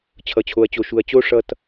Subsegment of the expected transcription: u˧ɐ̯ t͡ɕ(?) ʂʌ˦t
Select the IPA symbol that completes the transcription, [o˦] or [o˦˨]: o˦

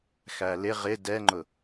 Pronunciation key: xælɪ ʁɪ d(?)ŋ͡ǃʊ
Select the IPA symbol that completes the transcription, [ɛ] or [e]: ɛ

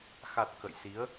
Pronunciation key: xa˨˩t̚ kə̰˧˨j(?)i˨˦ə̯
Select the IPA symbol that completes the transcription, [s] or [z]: s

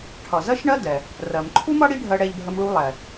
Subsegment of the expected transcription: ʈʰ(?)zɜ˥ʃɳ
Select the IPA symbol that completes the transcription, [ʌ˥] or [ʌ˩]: ʌ˩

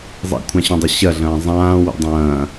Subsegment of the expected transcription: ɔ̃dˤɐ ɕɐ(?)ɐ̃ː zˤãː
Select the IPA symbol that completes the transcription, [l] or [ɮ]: ɮ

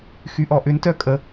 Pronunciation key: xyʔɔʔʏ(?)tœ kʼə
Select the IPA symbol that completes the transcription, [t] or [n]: n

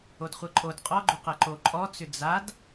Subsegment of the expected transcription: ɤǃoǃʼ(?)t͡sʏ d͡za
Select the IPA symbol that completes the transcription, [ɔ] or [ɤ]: ɔ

